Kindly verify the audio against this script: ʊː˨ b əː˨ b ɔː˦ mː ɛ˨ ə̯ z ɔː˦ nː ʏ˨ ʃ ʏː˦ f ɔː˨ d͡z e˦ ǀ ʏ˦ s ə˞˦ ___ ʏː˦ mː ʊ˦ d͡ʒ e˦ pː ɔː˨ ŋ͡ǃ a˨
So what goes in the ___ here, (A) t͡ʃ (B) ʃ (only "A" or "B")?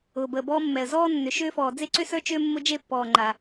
A